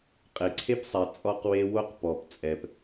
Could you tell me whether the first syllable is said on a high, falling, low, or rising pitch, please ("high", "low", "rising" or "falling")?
low